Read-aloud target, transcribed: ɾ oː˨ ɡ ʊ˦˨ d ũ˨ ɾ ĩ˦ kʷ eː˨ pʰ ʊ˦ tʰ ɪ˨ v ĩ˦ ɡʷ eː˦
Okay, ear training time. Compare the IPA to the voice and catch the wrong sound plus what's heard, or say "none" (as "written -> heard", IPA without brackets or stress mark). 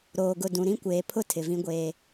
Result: none